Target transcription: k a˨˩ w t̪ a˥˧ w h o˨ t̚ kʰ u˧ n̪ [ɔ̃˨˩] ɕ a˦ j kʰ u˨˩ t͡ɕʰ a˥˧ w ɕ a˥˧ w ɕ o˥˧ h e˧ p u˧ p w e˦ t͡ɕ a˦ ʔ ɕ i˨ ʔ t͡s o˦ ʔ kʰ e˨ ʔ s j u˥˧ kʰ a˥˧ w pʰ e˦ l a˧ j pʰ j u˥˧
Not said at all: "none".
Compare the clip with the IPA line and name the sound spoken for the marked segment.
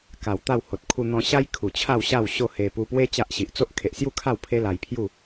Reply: ɔ̃˧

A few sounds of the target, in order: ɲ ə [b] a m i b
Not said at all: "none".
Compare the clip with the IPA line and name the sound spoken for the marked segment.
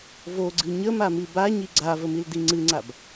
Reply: m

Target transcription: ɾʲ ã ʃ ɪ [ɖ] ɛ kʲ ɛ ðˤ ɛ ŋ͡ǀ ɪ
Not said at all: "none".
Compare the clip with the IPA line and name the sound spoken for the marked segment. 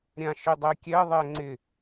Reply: dˤ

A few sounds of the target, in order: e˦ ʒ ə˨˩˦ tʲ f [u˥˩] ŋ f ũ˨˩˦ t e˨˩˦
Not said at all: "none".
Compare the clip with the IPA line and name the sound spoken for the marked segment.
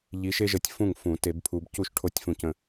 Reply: ũ˥˩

